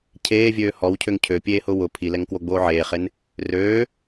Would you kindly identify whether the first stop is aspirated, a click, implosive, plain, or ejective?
aspirated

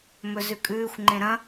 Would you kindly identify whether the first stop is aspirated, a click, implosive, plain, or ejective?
ejective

